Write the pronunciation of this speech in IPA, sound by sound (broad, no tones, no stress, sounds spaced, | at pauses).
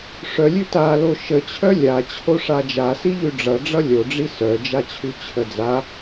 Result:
ʂ œ lʲ ʉ t a l o ʃ ə t͡ɕʰ œ lʲ a t͡ɕʰ o ʂ a d͡ʒ a s i ʎ ʉ ɖ͡ʐ ʌ ɖ͡ʐ ʌ lʲ o ɖ͡ʐ i s œ d͡ʒ a t͡ɕʰ ʉ t͡ɕʰ ə d͡z a